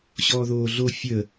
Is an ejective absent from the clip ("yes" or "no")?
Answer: yes